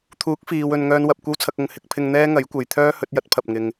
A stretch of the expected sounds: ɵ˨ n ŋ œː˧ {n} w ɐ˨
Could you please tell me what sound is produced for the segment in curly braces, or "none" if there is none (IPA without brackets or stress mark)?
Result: n